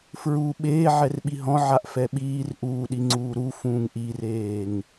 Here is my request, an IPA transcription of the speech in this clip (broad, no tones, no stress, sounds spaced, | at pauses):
f ɹ u ɓ eː ʕ ɛ r ɓ i ɦ ɔ̃ ʕ a ʔ f ɛ ɓ iː r ʔ uː ɗ i ŋ͡ǀ uː ɾ u f ũː ŋ ʔ i r eː ŋ